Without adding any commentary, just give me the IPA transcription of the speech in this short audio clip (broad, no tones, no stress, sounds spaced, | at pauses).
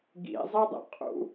ɡ ḭ zˤ i dˤ ḭ qʼ ṵ